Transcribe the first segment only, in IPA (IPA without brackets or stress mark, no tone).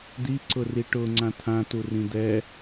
d̪